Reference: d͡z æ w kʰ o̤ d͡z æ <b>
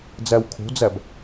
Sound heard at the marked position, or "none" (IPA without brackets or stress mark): b